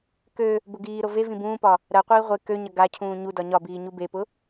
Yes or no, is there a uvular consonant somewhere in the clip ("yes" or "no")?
yes